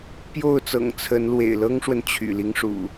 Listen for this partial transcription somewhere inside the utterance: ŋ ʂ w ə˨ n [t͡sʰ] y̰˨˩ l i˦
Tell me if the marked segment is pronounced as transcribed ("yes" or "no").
no